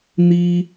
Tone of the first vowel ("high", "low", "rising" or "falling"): high